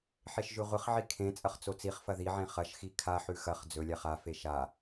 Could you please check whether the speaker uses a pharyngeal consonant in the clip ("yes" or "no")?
yes